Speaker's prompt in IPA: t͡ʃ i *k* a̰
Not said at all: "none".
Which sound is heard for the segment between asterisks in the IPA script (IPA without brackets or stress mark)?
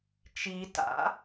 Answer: t